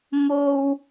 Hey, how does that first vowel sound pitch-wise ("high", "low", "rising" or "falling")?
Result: high